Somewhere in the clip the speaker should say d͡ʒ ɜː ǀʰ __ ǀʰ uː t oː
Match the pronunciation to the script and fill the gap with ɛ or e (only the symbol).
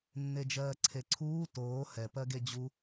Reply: e